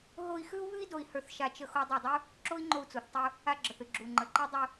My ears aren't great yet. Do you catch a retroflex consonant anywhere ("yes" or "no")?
no